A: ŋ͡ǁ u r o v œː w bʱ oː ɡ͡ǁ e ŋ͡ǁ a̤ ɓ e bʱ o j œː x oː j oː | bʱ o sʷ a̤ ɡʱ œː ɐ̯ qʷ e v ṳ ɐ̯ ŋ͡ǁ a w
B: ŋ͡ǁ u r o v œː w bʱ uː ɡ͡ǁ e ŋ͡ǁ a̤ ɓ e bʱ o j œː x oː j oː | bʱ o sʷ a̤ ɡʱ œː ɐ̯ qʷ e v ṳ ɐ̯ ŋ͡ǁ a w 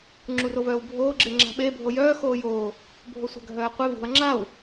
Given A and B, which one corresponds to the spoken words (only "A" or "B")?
A